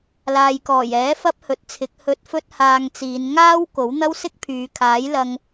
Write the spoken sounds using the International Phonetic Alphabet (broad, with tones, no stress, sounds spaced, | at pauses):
l aː˨ j k ɔː˨˩ j ɛː˨˥ f ɐ˥ p̚ h ɵ˨˥ t̚ t͡sʰ ɪ˨˥ k̚ h ɵ˧ t̚ f ɵ˥ t̚ h aː˧ ŋ t͡s iː˨˧ n ŋ aː˥ w k o˨˥ w n̪ ɐ˥ w s ɪ˥ k̚ pʰ yː˨˧ kʰ aː˨˥ j l ɐ˧ ŋ